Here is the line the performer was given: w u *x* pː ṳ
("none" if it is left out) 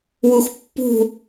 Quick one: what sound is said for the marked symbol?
x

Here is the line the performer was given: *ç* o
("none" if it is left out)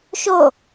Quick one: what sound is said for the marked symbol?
ʃ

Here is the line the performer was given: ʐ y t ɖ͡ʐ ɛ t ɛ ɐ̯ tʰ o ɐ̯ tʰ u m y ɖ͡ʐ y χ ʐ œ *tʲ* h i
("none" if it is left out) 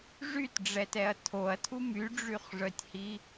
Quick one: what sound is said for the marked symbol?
tʲ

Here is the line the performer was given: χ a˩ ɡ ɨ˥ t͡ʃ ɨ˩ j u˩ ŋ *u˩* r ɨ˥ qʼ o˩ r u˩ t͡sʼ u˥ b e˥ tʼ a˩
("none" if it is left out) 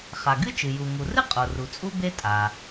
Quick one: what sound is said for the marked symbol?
u˩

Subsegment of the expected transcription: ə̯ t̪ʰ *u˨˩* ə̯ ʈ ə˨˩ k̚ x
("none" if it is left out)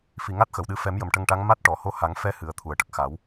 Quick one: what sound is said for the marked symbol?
u˨˩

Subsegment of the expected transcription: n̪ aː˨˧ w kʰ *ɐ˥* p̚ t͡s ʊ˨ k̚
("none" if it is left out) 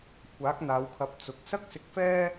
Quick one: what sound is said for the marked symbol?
ɐ˨˥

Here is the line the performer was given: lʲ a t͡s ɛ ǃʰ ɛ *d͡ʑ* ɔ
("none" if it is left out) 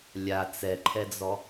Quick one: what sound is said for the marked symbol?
d͡z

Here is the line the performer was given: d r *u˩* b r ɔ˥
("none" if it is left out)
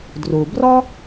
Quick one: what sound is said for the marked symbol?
u˩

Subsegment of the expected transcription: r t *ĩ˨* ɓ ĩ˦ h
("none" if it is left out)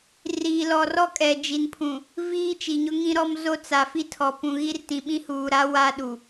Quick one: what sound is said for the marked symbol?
ĩ˨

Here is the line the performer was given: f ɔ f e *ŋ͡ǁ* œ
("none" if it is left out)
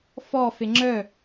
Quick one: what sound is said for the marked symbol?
ŋ͡ǁ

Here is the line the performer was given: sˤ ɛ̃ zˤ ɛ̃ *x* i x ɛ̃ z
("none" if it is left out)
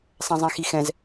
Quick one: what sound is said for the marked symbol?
x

